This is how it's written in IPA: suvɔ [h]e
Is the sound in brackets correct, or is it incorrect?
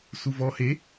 correct